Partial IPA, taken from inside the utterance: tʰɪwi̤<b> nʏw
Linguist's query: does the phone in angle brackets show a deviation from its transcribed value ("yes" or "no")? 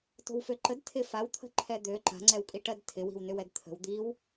yes